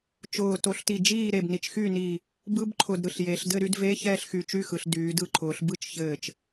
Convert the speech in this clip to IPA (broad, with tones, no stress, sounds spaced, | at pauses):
t͡ʃ ʊː˧˩ t o˧˩ ɬ t i˧˩ d͡ʒ iː˥˨ ɾ e˧˩ b n i˩˧ t͡ʃ x yː˥˨ n iː˧˩ | b ɯ˧˥˧ b ǃʰ ʊ˧˩ d ɾ ɯ˧˩ ɬ j e˩˧ ɬ d ɘ˥˨ ɾ y˧˥˧ d v e˧˥˧ ç ɛː˥˨ ɬ x y˧˩ t͡ʃ y˥˨ x ɯ˩˧ ɬ d yː˩˧ d ɯ˧˩ ǃʰ ʊː˩˧ ɬ b ɯ˥˨ t͡ʃ ç ɘː˧˩ t͡ʃ